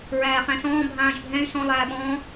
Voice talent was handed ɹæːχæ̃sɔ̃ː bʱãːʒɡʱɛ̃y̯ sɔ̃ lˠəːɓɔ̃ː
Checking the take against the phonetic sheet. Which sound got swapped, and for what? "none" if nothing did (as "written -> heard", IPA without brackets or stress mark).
əː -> æː